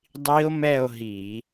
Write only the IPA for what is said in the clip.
dˤi˦˥o̯mɛ˥˧o̯ɦi˧˩˧

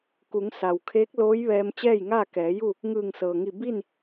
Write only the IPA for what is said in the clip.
ku˩˧ŋ sa˩wkʰeː˧˥k̚loː˧˥j ʋɛː˧m t͡ɕɛː˥˨jŋaː˥˨kɛː˩˧ju˥˨ | ŋɯː˧˩ŋsɤː˩ŋi˧˩ bi˥˨n

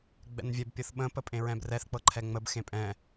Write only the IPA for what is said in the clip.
ɡ͡bɛ̰nvʲɛb pʲɤθɓə̃ pəpʼẽɹɛ̃brɛθ k͡pɤǃʰɛŋ͡məb xẽpʼɛ̃

